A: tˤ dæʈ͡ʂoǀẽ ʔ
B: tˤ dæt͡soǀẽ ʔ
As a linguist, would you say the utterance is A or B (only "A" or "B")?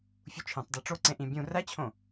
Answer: A